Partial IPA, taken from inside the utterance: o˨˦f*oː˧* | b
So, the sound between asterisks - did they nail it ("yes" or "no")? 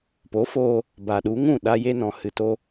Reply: yes